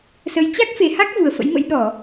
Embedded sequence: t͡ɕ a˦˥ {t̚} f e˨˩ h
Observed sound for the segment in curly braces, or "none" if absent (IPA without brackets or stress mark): k̚